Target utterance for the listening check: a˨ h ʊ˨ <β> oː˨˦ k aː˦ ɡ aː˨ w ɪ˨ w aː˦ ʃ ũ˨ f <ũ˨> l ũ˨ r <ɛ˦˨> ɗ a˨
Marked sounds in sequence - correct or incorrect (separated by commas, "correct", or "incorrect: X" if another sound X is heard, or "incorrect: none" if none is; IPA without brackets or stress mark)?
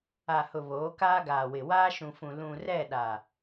correct, correct, correct